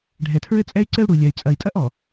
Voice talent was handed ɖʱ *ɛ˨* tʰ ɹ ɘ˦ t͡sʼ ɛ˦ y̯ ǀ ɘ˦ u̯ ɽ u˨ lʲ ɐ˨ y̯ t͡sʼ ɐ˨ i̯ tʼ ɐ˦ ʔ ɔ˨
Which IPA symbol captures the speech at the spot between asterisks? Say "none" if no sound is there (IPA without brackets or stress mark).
ɛ˨